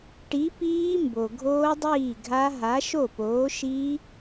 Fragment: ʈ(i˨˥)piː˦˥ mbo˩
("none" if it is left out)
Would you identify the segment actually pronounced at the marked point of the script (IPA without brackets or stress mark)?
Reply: i˨˥